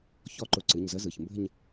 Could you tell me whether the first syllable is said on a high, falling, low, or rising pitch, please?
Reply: falling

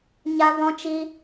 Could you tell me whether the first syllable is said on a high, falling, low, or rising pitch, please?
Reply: high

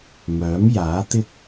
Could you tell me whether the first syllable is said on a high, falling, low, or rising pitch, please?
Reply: rising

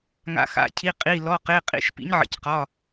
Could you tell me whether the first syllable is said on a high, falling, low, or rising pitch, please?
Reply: rising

